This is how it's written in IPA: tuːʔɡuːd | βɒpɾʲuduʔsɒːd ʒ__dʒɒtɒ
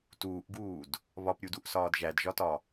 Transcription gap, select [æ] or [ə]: æ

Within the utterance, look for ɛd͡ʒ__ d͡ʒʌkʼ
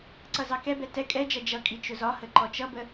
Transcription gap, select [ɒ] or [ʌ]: ʌ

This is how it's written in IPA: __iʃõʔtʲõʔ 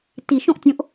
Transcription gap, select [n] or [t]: t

